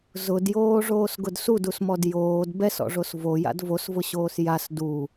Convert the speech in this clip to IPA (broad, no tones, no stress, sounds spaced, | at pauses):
z ʊ d j oː ʐ oː s ɡ ʊ d s u d u s m ɔ d j oː d b ɛ s ɔ̰ ʐ o s v o j a̰ d v o s v ʊ ɕ oː s j a s d u